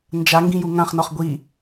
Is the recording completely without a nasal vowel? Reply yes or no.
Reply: no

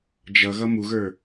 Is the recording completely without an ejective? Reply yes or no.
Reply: yes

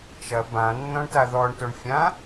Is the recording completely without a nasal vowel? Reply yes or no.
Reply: no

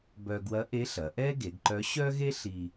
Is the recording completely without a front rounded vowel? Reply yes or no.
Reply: no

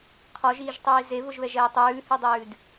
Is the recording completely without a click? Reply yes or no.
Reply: yes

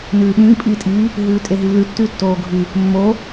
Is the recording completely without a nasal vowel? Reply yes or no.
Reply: no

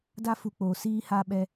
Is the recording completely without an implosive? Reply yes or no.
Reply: no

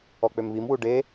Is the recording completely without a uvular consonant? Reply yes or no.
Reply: yes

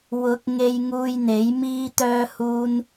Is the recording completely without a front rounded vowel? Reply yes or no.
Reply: no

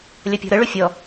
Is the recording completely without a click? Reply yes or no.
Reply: yes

